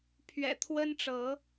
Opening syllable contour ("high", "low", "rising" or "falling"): low